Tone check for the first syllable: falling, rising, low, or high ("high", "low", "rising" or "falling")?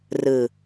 low